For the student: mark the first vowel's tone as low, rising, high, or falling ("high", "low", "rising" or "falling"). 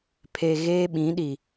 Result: low